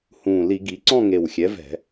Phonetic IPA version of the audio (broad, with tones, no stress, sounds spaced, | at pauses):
h ũː˨˩ l i˧˩˧ ɡ i˩˧ ǀ ɔ̃˥˧ ŋ e˨˩ w xʲ ɛ˩˥ v ɛ̤˧˩˧